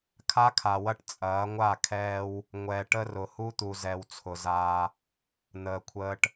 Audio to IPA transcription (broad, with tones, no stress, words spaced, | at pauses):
kʰa˦kʰa˨wɐ˦ʈ t͡sʼɐː˨˦ŋʷa˦˨kʰɛː˦w | ŋʷɛ˨ ʈə˦rʊ˨ hu˦t̪u˨zɛ˨w t͡sʰʊ˨zaː˦ | n̪əː˨kʷʰəː˦ʈ